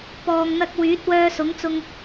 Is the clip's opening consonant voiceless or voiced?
voiceless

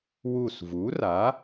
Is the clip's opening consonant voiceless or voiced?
voiced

